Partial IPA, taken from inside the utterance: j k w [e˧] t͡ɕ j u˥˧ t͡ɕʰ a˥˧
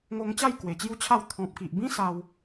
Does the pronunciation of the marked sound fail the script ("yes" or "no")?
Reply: yes